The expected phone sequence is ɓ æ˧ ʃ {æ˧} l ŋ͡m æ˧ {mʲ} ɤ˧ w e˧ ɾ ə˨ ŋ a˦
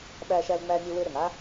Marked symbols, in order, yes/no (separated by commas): yes, yes